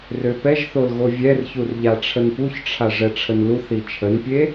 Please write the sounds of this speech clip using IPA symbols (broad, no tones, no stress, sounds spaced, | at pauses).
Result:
r ø p ɛ ʒ θ o l ɣ o vʲ ɛ r ç u r ʎ a ʈ͡ʂʰ ə n p u ç ʈ͡ʂʰ a ʐ ɛ ʈ͡ʂʰ ə n l u θ i t͡ʃʰ ə n pʲ e